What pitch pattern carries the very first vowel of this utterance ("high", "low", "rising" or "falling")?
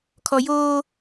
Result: low